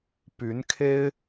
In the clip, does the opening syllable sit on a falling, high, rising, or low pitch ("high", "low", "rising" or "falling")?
rising